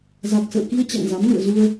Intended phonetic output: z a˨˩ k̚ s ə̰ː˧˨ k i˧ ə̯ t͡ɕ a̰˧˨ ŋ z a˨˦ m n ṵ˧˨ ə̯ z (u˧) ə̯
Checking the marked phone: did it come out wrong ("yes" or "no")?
no